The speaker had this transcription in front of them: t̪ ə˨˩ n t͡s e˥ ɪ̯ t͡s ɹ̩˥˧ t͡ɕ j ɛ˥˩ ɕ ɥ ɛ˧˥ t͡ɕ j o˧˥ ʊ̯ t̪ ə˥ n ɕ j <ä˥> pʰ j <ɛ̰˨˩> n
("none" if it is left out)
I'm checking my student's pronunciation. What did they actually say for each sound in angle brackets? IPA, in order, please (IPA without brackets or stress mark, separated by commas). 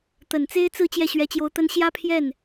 ä˥, ɛ˥˩